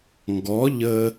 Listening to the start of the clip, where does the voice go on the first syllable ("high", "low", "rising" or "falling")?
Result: rising